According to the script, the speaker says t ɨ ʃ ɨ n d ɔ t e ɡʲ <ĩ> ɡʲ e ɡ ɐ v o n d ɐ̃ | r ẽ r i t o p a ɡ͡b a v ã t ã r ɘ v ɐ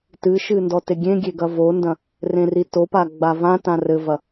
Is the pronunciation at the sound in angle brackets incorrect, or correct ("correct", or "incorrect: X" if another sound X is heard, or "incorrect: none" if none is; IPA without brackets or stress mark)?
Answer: incorrect: ẽ